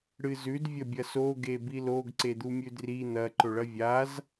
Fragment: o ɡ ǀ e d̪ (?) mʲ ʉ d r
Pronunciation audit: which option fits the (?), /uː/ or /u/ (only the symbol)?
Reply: u